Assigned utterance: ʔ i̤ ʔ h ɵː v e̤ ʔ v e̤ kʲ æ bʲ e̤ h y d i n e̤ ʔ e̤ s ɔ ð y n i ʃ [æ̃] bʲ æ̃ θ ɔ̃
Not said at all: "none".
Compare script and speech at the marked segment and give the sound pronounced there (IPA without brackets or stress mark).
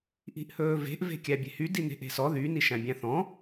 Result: æ̃